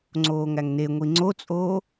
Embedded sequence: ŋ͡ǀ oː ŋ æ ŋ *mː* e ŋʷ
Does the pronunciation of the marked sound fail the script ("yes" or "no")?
yes